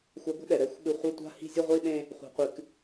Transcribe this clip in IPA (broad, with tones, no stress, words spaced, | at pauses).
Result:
xʷa˧ɡʷɛ̤˥ɗɛ˩ ɾɛ˧xʷɓɨ˧ χʷa˥tʷa̤˥hi̤˥ zʲɛ˥ʁʷi˥ɗẽ˥ | χʷa̤˧qʷɨ˧k